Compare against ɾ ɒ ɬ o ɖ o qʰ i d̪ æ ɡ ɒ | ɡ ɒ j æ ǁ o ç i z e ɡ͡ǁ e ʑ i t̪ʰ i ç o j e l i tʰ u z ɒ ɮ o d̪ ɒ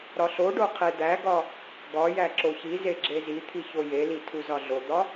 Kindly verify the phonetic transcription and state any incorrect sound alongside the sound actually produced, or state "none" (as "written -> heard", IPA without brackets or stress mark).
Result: ʑ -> z